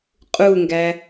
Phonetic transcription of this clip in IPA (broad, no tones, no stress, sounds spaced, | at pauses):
qʼ u ŋ ɡ æ